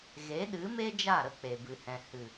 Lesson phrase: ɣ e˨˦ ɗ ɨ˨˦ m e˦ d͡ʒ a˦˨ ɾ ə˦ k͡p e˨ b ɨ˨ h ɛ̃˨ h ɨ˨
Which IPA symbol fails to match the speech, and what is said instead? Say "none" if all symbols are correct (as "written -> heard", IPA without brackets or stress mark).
none